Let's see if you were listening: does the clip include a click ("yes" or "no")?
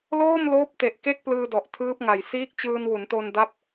no